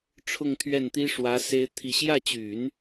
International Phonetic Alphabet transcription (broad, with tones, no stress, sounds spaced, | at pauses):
ʈ͡ʂʰ ʊ˥˧ ŋ t̪ʰ ɥ ɛ˥˩ n t̪ i˥ ʂ w ä˧˥ s e˥ ɪ̯ t̪ʰ i˥˧ ɕ j ä˥˩ t͡ɕ y˨˩˦ n